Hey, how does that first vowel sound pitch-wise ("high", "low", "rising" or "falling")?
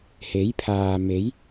rising